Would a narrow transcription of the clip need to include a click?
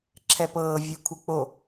yes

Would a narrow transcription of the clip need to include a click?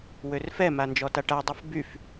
no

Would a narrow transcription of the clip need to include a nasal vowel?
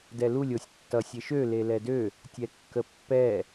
no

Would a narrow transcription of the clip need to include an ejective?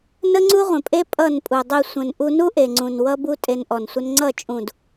yes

